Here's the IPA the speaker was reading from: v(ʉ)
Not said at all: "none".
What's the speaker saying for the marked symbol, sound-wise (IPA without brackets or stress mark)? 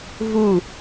u